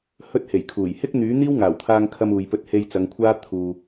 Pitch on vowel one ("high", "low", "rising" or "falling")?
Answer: high